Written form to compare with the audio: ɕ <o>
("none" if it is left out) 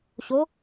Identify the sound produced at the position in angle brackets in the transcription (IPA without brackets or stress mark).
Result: o